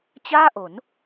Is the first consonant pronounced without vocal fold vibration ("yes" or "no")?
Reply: yes